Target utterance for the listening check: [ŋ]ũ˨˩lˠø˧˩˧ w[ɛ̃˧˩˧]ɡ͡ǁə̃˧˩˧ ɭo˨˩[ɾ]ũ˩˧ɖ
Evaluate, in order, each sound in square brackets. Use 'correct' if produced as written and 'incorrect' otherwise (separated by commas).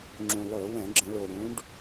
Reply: incorrect, correct, correct